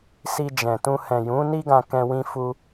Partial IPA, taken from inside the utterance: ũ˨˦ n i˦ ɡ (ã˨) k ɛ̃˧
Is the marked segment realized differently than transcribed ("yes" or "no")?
yes